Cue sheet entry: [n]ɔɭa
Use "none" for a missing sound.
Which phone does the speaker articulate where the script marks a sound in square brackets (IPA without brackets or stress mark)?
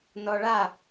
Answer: n